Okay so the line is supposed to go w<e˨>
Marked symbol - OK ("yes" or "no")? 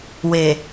yes